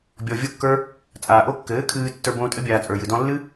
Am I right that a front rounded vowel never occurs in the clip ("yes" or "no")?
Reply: yes